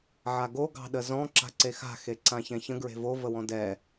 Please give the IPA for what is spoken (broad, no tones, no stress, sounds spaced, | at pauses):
ʕ a ɡ o ɡ ɑ̤ ɗ ə z ɔ̃ ǁ a̤ ǀ e x a̤ x e ǀ ã ç ɛ̃ ç ə̃ ɡ ɹ e̤ v o v ə w ɔ̃ d ɛ